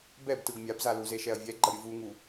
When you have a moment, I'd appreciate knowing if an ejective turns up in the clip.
no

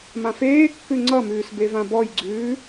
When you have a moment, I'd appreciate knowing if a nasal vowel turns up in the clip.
yes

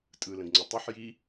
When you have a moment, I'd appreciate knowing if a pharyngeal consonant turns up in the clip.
yes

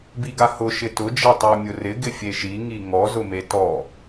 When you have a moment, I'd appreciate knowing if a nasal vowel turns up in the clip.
no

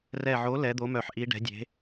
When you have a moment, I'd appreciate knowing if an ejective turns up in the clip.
no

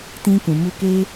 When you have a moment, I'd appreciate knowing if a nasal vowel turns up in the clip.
yes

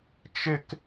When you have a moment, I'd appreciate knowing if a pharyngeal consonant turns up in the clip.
no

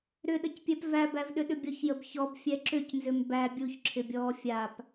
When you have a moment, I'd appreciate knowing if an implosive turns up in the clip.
yes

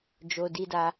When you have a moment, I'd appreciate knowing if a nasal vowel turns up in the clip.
no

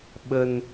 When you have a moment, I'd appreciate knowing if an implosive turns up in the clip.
yes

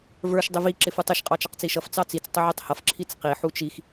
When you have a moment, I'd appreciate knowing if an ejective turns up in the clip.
yes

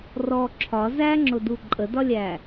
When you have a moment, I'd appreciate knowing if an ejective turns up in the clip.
yes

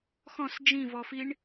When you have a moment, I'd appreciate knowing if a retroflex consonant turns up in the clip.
yes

